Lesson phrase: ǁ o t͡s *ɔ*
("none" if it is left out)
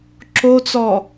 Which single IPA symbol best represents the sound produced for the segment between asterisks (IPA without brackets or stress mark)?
ɔ